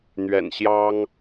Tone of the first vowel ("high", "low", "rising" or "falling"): low